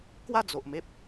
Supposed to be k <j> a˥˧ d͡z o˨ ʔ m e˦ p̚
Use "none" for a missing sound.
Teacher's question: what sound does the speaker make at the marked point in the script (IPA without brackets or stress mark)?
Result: w